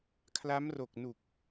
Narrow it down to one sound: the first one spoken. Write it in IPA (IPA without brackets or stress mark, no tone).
kʰ